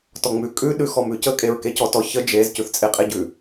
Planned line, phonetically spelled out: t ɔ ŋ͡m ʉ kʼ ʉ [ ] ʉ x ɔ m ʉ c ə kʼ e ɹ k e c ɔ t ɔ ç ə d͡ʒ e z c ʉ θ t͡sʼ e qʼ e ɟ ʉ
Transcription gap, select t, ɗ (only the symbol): ɗ